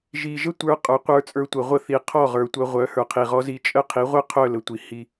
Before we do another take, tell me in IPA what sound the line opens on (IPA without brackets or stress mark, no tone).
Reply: ʒ